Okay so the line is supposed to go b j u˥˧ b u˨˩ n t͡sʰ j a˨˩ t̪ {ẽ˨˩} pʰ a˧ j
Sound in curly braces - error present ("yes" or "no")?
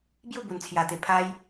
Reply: yes